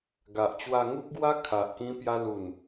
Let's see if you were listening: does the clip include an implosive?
no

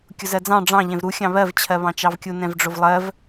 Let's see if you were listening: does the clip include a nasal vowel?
yes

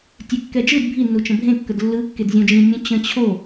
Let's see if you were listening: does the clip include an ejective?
no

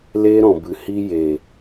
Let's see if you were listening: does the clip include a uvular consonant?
no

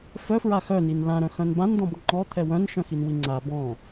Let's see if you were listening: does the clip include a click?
yes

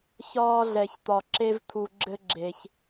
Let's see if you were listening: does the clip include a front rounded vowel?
no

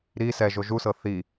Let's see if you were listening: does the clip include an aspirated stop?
no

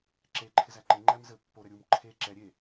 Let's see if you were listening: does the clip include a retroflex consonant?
no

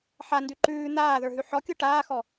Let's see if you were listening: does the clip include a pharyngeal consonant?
yes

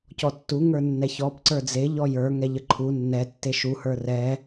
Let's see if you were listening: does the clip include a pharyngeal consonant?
no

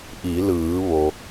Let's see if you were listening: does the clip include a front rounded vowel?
no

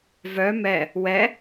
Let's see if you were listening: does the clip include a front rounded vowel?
yes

